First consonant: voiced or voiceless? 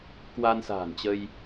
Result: voiceless